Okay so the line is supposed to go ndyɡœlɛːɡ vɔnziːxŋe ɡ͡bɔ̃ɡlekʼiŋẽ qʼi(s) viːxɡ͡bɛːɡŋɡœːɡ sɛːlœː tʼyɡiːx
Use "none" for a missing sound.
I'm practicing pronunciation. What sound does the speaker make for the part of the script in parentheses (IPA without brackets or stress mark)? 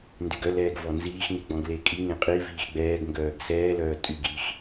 none